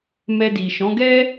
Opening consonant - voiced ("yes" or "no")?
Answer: yes